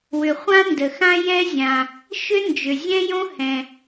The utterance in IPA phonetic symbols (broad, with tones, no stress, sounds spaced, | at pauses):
w ʏ˩ χʷ ã˥ n d ə˩ x ã˥ j ɛ˥ zʲ ã˩ | ʃ ʏ˥ n d͡ʒ ʏ˩ zʲ ɛ̃˥ j õ˥ h ɛ̃˩